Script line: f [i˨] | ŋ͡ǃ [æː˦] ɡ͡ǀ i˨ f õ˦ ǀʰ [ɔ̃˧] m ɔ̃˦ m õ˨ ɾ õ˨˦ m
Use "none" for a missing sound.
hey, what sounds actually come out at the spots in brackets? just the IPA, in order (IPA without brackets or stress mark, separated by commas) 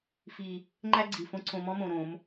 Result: i˨, æ˦, õ˧